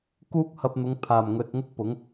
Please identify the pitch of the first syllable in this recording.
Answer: high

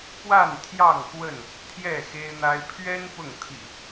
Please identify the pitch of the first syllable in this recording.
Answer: falling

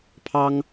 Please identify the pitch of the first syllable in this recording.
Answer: high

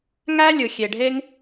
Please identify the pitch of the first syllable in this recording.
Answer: high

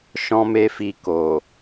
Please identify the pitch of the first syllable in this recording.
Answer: high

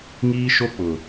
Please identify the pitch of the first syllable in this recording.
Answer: high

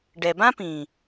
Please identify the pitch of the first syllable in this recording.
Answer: low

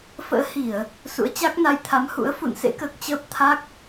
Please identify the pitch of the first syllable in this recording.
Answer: rising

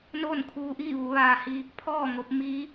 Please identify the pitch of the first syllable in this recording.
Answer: falling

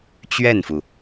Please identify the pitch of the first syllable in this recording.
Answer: falling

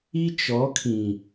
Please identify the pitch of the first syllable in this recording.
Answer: high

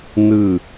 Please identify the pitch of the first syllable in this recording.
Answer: falling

